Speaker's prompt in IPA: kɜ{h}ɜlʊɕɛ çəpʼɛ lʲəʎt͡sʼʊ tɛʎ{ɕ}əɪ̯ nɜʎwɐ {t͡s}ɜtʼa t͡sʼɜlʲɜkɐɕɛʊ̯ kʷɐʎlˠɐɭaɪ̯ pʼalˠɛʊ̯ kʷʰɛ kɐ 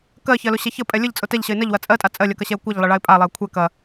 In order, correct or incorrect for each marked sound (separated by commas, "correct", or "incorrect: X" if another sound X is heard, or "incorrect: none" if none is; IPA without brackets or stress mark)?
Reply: incorrect: ç, correct, incorrect: t͡sʼ